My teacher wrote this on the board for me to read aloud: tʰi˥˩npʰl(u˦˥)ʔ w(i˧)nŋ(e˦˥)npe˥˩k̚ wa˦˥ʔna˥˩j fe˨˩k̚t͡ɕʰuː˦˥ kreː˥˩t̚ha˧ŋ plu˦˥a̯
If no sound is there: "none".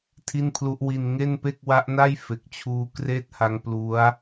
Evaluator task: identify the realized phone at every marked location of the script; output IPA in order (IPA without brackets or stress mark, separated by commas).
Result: u˦˥, i˧, e˥˩